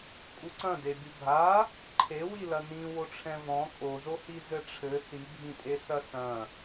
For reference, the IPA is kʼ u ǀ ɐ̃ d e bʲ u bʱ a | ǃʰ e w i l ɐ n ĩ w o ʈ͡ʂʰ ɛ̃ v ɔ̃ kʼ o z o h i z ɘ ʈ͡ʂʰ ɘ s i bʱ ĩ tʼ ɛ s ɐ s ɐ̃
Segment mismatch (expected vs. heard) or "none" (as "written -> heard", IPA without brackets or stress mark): ɛ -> e